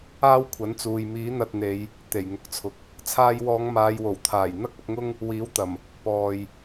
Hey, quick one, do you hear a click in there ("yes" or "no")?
no